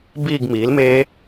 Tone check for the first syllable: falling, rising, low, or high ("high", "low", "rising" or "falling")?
falling